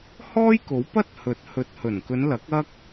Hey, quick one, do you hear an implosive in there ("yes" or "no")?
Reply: no